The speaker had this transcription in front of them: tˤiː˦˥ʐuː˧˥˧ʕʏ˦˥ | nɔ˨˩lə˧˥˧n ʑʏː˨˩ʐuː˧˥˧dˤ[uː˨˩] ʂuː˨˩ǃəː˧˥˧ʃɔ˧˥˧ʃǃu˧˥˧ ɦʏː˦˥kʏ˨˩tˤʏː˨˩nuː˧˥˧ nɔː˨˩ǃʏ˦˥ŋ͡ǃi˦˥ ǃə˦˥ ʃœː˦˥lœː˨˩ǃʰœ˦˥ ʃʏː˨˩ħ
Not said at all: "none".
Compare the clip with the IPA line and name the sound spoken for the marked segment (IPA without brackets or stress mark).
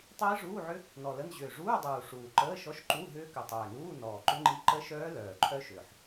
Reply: uː˨˩